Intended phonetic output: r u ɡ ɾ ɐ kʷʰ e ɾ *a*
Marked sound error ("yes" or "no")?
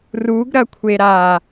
no